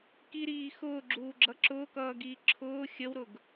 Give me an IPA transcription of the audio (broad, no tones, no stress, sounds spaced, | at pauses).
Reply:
k i ɾ iː x ʊː ɡ͡ǁ uː ɡ͡ǁ ʌ ǁ ʊː k ʌː ɡ iː ǁʰ ʊː xʲ ə w ɾ ʊ ɡ